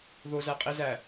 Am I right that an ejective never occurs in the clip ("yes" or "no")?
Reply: no